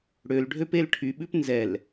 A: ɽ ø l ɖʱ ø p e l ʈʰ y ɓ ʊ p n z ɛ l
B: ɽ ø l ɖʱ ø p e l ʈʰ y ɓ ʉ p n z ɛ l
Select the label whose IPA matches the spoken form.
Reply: B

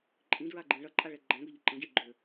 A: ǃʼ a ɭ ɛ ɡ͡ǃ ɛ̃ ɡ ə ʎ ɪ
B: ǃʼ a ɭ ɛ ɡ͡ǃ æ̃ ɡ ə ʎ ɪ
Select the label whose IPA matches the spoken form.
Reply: B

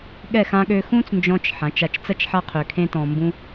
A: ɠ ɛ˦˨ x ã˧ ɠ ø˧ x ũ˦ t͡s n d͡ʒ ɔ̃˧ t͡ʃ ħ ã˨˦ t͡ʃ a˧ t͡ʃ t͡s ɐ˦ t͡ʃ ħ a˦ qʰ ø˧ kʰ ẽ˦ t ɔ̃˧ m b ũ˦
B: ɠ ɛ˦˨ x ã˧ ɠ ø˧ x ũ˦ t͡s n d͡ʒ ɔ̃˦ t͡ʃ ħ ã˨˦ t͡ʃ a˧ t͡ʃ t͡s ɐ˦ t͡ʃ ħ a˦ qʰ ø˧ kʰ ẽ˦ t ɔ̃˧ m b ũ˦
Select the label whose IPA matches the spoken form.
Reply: A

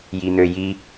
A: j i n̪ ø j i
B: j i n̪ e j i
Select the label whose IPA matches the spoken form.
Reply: A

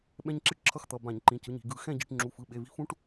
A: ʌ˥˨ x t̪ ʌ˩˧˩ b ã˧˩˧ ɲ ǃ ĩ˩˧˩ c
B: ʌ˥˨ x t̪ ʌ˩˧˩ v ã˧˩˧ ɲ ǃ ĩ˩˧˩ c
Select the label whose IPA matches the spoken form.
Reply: A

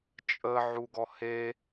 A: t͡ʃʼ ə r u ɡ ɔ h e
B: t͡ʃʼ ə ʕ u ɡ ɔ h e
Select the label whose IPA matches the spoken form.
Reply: B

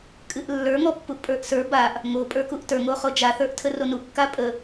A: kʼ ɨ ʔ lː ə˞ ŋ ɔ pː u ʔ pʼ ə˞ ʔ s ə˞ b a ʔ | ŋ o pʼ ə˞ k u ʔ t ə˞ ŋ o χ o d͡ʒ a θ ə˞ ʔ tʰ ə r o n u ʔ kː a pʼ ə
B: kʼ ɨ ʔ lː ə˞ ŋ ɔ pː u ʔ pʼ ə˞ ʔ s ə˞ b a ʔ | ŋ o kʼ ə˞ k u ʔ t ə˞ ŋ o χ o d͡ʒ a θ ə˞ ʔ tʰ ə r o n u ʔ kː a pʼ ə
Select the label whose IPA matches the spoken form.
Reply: A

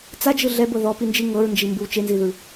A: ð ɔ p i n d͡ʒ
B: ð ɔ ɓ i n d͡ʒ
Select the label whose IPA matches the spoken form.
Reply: A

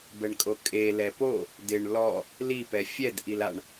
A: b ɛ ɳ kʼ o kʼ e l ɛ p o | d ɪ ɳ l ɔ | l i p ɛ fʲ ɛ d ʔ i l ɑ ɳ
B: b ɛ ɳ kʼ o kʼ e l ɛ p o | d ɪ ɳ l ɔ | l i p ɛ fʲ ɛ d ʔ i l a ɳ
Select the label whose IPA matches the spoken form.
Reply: B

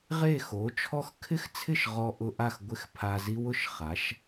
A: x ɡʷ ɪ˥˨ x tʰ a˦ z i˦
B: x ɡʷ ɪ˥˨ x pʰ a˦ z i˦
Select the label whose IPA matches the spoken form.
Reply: B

